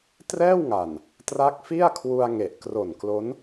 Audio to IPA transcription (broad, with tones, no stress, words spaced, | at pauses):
trɛː˥˩wŋa˨˩n | tra˦˥k̚fi˥˩a̯kʰwu˧a̯ ŋe˨˩ʔkro˨˩nklo˦˥n